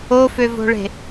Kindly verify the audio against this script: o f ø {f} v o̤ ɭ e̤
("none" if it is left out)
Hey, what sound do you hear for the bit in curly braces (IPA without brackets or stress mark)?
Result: none